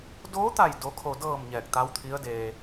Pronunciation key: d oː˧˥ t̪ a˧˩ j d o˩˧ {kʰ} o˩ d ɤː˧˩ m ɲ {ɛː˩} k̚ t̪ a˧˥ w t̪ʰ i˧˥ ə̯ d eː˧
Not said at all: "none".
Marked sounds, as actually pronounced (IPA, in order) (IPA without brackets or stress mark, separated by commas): kʰ, ɛː˧˩